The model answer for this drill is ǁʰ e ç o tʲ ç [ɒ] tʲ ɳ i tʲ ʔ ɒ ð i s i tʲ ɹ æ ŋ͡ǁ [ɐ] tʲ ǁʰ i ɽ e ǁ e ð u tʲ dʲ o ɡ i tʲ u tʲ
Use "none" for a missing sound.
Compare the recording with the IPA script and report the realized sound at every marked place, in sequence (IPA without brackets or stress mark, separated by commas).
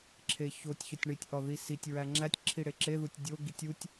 ɒ, æ